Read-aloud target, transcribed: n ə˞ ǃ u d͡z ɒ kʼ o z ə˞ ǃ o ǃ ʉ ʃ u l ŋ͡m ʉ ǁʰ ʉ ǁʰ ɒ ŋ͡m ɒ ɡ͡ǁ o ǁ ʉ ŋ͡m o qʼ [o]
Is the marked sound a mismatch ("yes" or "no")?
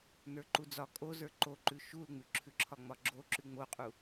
yes